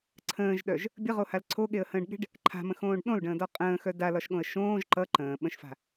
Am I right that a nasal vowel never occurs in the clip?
no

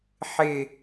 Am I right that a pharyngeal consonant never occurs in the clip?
no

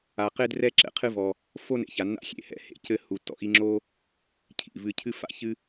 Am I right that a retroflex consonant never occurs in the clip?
yes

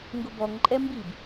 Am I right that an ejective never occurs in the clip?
no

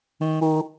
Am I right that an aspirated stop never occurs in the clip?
yes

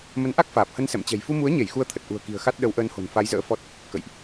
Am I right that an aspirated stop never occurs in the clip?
no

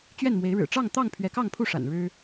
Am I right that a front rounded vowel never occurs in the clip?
yes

